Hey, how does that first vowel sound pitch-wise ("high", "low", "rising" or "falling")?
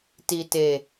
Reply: low